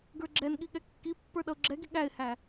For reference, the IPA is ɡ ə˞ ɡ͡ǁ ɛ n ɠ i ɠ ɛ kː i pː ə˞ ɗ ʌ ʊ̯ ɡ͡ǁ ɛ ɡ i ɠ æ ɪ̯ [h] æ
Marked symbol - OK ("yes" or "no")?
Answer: yes